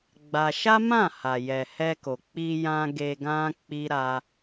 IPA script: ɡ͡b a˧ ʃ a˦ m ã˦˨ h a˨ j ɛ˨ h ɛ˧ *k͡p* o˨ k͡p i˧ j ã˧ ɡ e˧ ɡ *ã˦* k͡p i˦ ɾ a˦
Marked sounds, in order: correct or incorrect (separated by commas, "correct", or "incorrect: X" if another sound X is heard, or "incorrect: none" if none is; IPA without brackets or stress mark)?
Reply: incorrect: k, correct